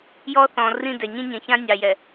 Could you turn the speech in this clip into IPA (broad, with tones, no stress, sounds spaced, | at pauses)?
j ɔ˦ θ ɔ̃˨ r ĩ˦˨ d ɛ˨ ɲ ĩ˦ ɲ ɛ̃˨ ç ã˦ nʲ ɑ˨ j ɛ˨